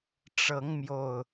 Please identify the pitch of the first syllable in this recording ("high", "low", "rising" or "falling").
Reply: rising